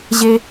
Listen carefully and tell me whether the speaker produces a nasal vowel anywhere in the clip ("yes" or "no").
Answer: no